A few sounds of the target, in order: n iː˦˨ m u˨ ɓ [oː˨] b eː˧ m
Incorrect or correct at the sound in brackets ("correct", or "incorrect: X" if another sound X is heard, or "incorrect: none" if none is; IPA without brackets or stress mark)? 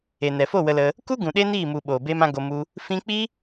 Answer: correct